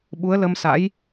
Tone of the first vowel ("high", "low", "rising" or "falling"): rising